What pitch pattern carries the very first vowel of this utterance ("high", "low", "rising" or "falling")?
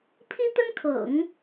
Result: high